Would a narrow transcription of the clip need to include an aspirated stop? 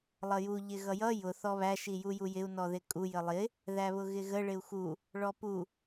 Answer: no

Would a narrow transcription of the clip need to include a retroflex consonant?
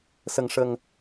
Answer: yes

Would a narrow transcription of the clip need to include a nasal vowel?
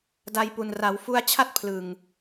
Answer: no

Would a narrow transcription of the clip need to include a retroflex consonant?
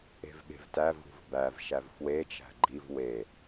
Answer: no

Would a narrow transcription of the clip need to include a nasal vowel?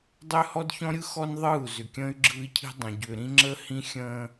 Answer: yes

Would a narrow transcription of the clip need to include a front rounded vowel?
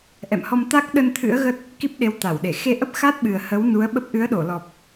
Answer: no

